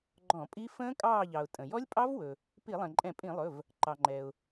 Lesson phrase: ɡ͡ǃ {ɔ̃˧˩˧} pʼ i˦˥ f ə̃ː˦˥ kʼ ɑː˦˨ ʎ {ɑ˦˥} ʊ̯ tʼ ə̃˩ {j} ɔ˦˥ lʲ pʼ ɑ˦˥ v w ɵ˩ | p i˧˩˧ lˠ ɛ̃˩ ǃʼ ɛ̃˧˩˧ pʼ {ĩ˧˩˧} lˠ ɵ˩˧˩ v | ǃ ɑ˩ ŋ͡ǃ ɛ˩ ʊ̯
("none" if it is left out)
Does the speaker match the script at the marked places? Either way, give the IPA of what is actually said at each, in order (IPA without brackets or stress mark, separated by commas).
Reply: ɔ̃˧˩˧, ɑ˩, j, ĩ˧˩˧